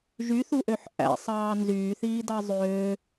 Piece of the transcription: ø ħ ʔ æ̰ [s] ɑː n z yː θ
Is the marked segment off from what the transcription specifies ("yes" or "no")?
yes